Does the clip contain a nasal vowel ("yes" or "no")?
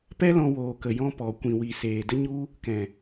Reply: yes